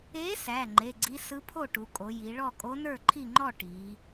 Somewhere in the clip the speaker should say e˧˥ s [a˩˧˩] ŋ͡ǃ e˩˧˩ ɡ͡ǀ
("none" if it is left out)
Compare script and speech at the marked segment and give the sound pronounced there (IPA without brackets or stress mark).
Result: æ˩˧˩